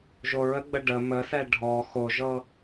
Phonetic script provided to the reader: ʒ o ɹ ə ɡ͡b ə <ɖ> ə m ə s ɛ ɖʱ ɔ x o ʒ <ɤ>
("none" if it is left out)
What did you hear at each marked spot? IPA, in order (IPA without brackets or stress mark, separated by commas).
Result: ɖ, ɤ